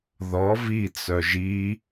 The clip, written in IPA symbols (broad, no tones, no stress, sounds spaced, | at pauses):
ð ɔ v i t͡s œ ʒ i